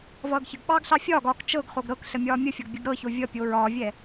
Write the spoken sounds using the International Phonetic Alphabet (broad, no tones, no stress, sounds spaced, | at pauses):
v ʌː ɡ ç ə ɡ ɓ ɑː ɡ ɬ ɑ fʲ ɒː ɡ ɒː k t͡ʃ ɤ ɡ χ o ɡ ɾ ɤ k ɬ ə mʲ ɒː mʲ ə fʲ ʌ ɡ bʲ ə ɡ ɾ ɤ ç o vʲ ʌ pʲ o ɹ ɒː vʲ ɛ